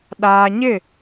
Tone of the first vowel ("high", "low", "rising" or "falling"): low